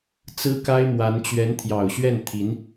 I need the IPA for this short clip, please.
t͡s ɹ̩˥ k a˥ ɪ̯ m w a˧˥ n t͡ɕ ɥ ɛ˧˥ n t̪ʰ j ɑ˨˩ ʊ̯ ɕ ɥ ɛ˥˩ n t̪ʰ i˧˥ n

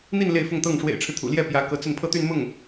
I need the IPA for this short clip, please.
n̪ i˥˧ n l e˥˧ ɪ̯ f ʊ˥˧ ŋ t̪ ɤ˥˩ ŋ ʂ w ḛ˨˩ ɪ̯ ʈ͡ʂʰ ɻ̩˦ t̪ʰ ṵ˨˩ l j ɛ˥˩ p j ä˧˥ k ɤ˧˥ t͡s ə˥˧ n pʰ ɤ˥˧ t̪ y˥˧ n m ʊ˥˩ ŋ

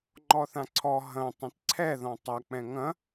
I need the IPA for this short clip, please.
ŋ͡ǃ ɔ θ ã ǀʰ ɔ ɦ ɐ̃ tˤ ɐ̃ t ǀʰ ɛ ð ɔ̃ tˤ ɐ k͡p ɛ̃ ŋ ɐ̃

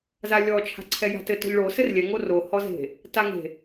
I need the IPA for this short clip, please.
z a lʲ ɔ t͡ʃʰ a̤ ǀʰ ɛ j a̤ t ɘ t ɔ̤ ʎ ɭ o s ɘ r lʲ ɛ ŋ o r o h ɔ z e̤ | t a ŋ e̤

